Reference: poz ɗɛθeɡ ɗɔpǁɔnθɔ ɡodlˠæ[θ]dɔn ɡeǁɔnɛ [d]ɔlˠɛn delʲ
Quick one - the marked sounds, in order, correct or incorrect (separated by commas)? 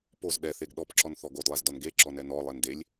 incorrect, incorrect